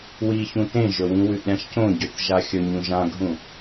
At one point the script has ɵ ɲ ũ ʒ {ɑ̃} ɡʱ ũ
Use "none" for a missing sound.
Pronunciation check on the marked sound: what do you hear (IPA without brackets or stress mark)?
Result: ã